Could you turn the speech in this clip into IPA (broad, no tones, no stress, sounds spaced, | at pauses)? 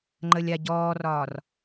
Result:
ŋ͡ǃ ə lʲ a ɟ ɔː r ɒː r